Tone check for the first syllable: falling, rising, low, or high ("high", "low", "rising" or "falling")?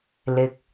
rising